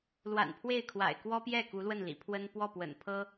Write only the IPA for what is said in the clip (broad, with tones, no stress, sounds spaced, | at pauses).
l w a̰˨˩ n pʰ w e˥˩ ɪ̯ kʰ w a̰˨˩ ɪ̯ k w ɔ˥ p j ɛ˥˩ k u˧˥ l w ə˥˩ n l ḭ˨˩ pʰ w ə˥ n p w ɔ˥˩ p w ə̰˨˩ n pʰ ɤ˥